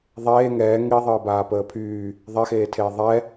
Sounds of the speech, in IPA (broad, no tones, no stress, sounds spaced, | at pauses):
ðˤ eː ŋ ɛː ŋ i ðˤ əː b aː p əː pʰ yː | ðˤ ɛ x eː tʰ eː ðˤ ɛ